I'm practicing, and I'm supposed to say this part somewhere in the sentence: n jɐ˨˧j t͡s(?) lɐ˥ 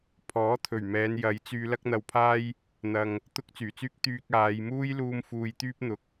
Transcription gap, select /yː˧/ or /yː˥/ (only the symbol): yː˧